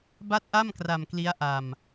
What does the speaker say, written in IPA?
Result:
b a˥˩ t̚ ʔ a˥˩ m k r a˧ m k l i˦˥ a̯ ʔ a˧ m

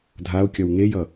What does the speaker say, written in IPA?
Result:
dʱ a o̯ kʲ ʌ w ŋ e j ʌ

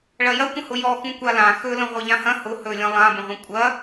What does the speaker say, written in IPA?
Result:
ɭ ɐ j ɐ kʷ ə̃ h ʊ j ɔ x ũ kʷ a l ã x ɵ l ə̃ ʁʷ ɐ ʎ ã h ɐ̃ h ʊ h ɵ lʲ ɐ̃ lˠ ã b ə̃ ʁʷ ɐ̃ kʷʼ ɐ

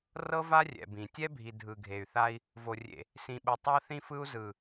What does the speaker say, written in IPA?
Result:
r ɤ˦ v a˦ rʲ ɛ̰˨ b ĩ˨ tʲ ɛ˦ bʱ i˨ dʱ ɯ˨ ɡʱ e˨ y̯ θ a˦ i̯ | v o˨ rʲ ḛ˨ | s ĩ˨ ɓ ɯ˨ tˤ a˦ θ ĩ˦ f ɯ˦ u̯ z ɯ˨

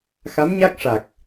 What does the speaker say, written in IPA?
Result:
x a˧˥ m ɲ a˦˥ k̚ ʂ a˨˩ k̚

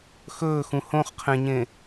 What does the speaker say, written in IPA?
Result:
x ɵː x ũ h õ χ qʰ ẽ ɲ ẽ

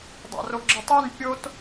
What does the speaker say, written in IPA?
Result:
dˤ a̰ r o ɡ͡ǁ ə tˤ i n pʲ o t

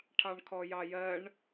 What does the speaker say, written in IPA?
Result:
ʈʰ ɑ ɳ kʰ ɔ j ɑ j ɜ ɳ

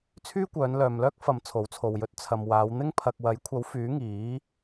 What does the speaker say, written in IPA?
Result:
t͡sʰ yː˥ kʷ œː˨˧ n l œː˨ m l œː˥ k̚ f ɐ˧ m t͡sʰ o˨˥ w t͡sʰ o˨ w j ɵ˧ t̚ t͡sʰ ɐ˨ m w aː˨˧ w n̪ ɪ˥ ŋ pʰ ɐ˨ k̚ w ɐ˨˥ j kʷʰ ɐ˨˥ w f yː˨˥ ŋ iː˨˥

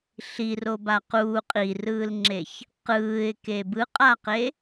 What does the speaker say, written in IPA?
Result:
ɬ i r o b a q uː qʼ i r ɯː l ŋ͡ǁ e ç | q ɯː ɪ̯ k e b ɯ qʼ a q e

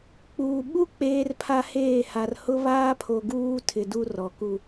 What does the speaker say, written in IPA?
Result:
k͡p uː˨ ɓ u˦ k͡p eː˦ r pʰ a˦ h eː˦˨ h a˨ r h ʊ˦ β aː˦ pʰ o˨ ɡ uː˦ tʰ ɪ˨ d u˦ r ɔ˨ k u˦

